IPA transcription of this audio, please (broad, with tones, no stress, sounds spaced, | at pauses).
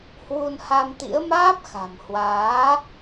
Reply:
h w u˧ n h a˧ m t̪ ḭ˧˥ ə̯ m aː˦˥ p̚ x a̤˨˩ m h w aː˨˦